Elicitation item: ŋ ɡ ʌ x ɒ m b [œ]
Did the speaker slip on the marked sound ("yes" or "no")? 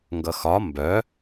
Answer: no